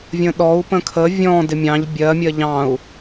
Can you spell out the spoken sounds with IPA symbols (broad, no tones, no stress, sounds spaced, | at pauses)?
vʲ ə̃ ɗ ɔ u̯ p ə̃ kʰ ə vʲ ɔ̃ d ɪ mʲ ɑ̃ ʎ bʲ ɜ mʲ ɜ ʎ ɑ̃ u̯